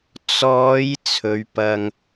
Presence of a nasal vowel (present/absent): absent